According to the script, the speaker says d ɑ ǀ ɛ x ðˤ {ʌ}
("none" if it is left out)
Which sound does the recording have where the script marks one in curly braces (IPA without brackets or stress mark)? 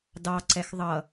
ʌ